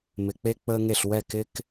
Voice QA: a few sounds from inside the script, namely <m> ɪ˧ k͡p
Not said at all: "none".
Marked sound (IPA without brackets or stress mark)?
m